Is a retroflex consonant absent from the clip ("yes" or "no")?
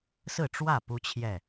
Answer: no